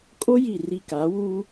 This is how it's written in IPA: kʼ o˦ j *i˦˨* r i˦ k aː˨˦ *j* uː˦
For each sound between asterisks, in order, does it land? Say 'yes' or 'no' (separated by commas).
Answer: yes, no